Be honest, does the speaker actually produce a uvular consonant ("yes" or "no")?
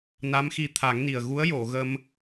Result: no